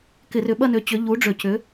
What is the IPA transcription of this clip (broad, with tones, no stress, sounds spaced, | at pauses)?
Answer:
k ɪ˧˩˧ r ʏ˨˦ ɓ ɐ˦˨ n ø˨˦ t͡ɕ ʏ˨˦ ʎ u˨˦ ɖ͡ʐ ø˧˩˧ c ʏ˨˦